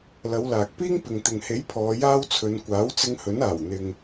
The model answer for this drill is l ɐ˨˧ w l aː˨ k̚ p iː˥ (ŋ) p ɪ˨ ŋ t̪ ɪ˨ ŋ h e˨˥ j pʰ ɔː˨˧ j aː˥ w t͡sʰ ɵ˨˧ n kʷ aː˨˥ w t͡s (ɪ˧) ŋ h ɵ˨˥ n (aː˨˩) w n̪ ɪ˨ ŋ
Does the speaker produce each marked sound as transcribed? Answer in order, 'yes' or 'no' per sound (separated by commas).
yes, yes, yes